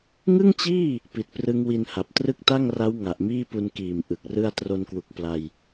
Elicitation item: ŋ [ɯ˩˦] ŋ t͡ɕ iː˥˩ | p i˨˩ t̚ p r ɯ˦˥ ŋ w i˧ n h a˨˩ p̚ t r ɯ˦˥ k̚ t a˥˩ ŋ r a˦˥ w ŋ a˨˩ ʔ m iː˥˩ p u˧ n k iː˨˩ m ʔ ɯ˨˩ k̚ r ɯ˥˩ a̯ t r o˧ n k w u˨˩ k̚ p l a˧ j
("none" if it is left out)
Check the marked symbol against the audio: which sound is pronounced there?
ɯ˥˩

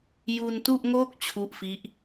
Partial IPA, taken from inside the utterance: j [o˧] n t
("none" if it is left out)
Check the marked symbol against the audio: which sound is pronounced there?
u˧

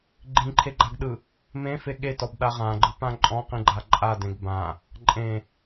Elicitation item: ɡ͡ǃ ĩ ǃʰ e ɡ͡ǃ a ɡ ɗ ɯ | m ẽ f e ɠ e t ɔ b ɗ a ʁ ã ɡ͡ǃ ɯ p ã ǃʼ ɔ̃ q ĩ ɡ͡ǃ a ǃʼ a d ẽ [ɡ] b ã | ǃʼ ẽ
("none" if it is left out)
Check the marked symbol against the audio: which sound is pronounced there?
ɡ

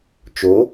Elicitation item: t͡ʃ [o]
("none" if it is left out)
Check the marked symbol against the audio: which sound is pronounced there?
o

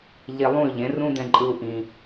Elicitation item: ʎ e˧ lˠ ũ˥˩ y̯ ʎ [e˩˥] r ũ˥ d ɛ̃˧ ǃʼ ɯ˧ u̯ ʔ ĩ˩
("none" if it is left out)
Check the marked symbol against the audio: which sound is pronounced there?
ẽ˩˥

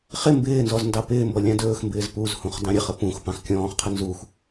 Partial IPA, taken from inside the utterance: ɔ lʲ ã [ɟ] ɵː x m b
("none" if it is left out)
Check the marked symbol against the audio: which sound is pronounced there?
d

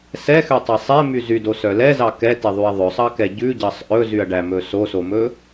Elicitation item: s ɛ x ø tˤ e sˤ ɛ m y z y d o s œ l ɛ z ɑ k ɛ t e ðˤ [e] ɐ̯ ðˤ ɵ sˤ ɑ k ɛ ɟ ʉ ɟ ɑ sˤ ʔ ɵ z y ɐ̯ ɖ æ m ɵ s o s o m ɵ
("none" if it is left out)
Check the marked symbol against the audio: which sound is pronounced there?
y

